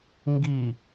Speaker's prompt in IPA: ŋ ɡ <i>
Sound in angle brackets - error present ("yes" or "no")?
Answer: no